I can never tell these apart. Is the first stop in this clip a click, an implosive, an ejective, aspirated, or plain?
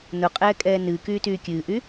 ejective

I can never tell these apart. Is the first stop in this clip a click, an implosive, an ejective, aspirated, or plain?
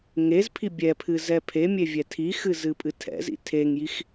aspirated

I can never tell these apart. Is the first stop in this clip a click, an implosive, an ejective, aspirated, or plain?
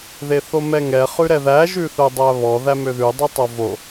plain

